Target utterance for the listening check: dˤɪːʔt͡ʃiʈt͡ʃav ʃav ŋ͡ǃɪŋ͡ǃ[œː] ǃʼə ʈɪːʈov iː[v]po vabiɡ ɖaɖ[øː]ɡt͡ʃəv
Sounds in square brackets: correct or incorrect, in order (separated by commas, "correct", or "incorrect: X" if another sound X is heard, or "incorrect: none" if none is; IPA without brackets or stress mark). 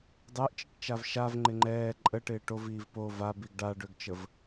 incorrect: ɛː, correct, incorrect: ø